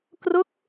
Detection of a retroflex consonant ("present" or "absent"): absent